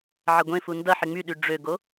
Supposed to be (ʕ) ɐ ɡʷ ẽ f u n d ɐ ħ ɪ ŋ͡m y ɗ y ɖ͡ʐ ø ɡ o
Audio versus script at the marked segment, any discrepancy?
no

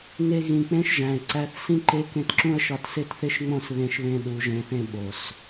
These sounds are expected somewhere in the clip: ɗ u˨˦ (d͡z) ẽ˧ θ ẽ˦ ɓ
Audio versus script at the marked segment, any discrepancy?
yes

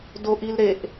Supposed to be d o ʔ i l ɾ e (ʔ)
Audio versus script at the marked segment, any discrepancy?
no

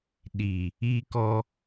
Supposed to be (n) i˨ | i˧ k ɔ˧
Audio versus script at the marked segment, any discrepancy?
yes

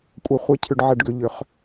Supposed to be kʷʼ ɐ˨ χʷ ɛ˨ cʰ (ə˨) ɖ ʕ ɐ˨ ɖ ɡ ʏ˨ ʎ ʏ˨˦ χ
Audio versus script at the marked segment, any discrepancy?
yes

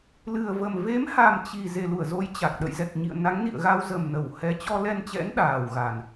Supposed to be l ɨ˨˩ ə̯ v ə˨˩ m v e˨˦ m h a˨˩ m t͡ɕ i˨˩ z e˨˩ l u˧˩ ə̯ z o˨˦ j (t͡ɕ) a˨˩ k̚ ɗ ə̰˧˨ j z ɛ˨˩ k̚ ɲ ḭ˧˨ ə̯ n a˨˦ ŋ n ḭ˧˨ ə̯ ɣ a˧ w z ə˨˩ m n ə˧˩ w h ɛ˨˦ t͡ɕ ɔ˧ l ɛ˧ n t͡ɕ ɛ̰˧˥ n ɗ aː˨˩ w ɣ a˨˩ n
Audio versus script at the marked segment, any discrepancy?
no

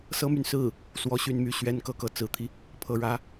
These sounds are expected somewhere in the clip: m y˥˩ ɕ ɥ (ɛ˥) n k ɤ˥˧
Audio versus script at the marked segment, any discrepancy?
no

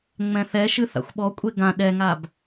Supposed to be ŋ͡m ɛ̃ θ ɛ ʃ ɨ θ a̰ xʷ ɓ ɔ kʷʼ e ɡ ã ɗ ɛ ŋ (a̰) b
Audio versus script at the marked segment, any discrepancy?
yes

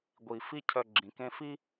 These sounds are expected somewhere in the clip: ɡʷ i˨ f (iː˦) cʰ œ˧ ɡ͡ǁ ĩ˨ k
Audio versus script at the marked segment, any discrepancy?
yes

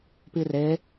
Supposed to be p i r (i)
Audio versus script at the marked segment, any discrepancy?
yes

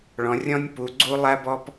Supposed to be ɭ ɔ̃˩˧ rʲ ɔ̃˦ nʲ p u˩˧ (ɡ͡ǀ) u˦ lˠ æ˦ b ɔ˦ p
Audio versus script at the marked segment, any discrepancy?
no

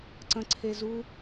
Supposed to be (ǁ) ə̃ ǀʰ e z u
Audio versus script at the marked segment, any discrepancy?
yes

